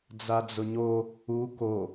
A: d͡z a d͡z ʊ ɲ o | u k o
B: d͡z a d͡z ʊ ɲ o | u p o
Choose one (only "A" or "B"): A